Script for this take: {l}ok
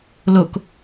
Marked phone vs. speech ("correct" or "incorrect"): correct